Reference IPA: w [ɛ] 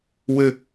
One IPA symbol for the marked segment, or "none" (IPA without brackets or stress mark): ɘ